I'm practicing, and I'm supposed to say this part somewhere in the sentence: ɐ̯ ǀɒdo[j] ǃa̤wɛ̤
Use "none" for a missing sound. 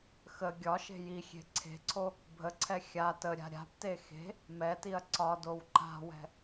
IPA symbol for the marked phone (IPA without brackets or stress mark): w